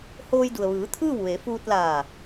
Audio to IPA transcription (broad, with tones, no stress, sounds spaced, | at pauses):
h oː˧ j d u˩ ə̯ ʋ ɯː˩˧ t̪ʰ ɯː˥˨ w ʋ e˩˧ f uː˧ t̚ l aː˧˩